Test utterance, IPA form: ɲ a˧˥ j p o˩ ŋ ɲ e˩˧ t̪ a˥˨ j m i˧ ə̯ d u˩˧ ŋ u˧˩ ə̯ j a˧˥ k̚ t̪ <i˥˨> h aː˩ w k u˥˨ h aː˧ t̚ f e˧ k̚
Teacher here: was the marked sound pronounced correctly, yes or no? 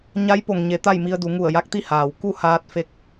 yes